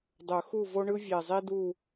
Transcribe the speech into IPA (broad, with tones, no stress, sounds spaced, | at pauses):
dˤ ɵ˨˩˦ x u˥˨ v o˥ ɳ ɯ˥ vʲ e˨˩ zˤ i˥ d u˥˨